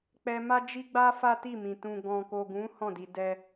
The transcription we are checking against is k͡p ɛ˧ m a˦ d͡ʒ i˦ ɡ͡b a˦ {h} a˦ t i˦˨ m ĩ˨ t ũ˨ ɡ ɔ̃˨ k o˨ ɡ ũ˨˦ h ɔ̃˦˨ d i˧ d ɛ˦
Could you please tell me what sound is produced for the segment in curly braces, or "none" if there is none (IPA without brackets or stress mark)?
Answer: f